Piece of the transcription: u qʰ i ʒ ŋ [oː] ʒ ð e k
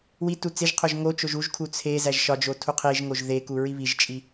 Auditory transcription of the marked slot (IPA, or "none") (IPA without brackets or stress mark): o